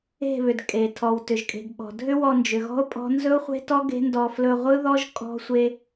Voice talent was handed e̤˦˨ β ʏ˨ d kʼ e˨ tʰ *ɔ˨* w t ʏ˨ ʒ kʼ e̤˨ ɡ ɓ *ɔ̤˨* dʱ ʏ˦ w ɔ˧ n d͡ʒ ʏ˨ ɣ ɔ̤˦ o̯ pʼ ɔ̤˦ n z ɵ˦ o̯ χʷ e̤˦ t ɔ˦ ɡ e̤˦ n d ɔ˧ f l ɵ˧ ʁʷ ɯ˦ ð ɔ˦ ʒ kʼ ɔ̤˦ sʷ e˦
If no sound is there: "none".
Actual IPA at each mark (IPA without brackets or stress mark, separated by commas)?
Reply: ɔ˨, ɔ̤˨